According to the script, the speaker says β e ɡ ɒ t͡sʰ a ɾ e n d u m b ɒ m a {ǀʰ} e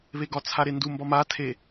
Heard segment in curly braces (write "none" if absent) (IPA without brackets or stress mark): tʰ